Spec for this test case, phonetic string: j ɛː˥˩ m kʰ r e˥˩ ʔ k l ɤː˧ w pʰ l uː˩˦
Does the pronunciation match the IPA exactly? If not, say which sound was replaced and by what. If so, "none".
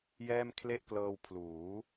r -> l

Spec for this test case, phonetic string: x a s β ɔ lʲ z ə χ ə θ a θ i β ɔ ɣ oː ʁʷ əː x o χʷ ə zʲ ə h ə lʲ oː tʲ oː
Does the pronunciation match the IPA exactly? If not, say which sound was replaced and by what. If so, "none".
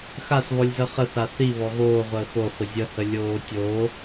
none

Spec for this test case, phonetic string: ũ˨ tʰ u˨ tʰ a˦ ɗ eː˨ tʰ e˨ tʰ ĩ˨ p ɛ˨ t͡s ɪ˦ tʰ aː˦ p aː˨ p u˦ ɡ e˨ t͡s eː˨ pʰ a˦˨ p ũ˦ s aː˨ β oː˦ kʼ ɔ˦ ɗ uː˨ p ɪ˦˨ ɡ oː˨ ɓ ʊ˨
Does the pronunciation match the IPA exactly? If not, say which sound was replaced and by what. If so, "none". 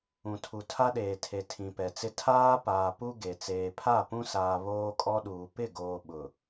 none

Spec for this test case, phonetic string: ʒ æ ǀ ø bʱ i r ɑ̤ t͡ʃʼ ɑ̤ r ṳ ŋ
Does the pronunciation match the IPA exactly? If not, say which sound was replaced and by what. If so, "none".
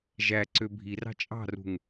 none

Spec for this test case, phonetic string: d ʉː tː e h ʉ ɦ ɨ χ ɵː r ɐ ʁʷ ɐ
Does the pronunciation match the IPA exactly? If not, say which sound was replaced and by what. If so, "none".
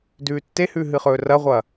none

